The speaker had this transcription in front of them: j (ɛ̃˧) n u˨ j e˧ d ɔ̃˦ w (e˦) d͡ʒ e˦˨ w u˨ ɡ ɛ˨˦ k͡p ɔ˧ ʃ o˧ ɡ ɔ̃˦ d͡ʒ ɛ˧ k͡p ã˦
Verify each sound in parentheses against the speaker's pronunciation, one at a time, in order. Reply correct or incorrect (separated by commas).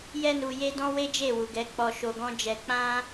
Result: incorrect, correct